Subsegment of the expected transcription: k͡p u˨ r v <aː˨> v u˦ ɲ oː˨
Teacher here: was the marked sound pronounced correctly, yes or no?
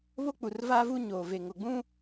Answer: no